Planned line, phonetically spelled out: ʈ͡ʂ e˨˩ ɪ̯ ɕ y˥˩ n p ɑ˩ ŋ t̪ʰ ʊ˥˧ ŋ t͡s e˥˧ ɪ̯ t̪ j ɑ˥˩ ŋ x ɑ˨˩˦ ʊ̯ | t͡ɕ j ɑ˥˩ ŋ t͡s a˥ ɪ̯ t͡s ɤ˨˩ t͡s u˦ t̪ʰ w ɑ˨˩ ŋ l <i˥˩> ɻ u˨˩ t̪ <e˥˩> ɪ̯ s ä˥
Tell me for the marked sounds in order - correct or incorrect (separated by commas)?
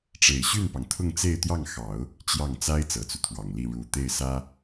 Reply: correct, correct